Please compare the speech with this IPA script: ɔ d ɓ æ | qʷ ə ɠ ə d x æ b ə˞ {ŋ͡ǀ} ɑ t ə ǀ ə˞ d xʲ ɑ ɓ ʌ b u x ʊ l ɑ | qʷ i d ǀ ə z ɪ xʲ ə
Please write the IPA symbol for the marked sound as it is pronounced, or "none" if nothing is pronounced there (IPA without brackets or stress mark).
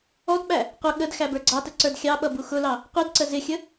ɡ͡ǀ